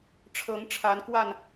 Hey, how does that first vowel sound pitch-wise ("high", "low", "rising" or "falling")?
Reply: rising